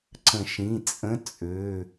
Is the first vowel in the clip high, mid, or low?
mid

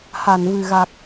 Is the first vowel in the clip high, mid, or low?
low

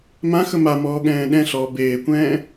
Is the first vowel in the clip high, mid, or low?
low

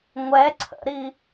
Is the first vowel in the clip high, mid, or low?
mid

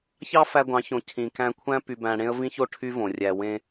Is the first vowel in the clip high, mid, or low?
low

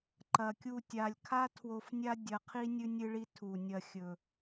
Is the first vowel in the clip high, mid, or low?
low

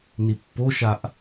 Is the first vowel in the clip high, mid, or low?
high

